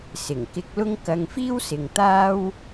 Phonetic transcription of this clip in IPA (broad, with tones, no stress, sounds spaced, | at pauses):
s ɪ˨˩ ŋ k ɪ˧ k̚ l ʊ˥ ŋ k ɐ˧ ŋ f iː˥ w s ɪ˨ ŋ t̪ aː˥ w